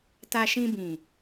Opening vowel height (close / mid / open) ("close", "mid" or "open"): open